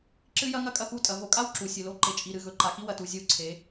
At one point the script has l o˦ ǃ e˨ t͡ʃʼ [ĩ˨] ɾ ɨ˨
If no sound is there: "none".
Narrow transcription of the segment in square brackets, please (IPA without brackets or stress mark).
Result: i˨